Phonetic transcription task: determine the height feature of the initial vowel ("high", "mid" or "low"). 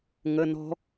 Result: mid